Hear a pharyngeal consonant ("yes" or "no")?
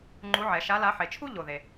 yes